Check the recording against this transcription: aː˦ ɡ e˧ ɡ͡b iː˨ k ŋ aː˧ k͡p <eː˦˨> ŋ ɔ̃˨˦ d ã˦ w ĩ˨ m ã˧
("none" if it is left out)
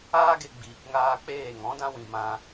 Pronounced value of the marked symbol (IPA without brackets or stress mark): eː˦˨